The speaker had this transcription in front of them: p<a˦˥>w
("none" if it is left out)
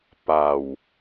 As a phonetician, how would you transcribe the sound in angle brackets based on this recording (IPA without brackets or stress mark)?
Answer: a˧